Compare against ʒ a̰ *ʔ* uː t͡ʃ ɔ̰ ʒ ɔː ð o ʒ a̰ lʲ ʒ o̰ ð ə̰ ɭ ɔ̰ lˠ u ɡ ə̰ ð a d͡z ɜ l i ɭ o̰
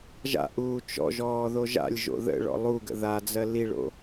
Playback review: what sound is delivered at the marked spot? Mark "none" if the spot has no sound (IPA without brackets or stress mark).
ʔ